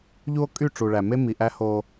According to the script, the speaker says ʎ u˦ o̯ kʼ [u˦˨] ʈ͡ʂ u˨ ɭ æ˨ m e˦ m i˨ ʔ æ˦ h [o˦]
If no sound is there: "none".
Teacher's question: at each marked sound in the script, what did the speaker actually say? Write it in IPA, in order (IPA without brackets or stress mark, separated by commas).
y˦˨, o˦